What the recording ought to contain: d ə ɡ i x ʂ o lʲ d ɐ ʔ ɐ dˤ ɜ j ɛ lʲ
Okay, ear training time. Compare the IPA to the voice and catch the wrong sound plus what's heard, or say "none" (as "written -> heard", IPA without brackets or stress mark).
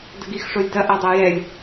none